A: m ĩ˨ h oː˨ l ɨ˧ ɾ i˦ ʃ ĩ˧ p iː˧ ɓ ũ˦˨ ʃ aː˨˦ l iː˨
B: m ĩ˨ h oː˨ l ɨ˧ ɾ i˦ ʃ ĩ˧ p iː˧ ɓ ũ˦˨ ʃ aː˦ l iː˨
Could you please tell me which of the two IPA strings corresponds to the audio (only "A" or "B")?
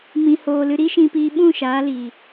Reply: A